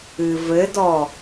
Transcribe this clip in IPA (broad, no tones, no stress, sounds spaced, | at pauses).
ɨ v ɘ d ɔ